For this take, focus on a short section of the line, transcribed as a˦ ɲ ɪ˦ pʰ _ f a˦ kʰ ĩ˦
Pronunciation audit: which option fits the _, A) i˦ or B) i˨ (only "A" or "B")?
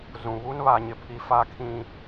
A